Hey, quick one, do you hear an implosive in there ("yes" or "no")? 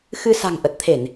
no